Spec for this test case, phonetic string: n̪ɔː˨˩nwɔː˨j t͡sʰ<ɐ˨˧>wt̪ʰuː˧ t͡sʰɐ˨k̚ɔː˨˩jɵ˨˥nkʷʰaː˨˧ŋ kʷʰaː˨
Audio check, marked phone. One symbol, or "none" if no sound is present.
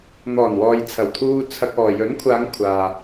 ɐ˨˩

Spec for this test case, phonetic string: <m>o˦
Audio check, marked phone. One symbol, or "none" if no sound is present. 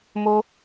m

